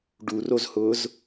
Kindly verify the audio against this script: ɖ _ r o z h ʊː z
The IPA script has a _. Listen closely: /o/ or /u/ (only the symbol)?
u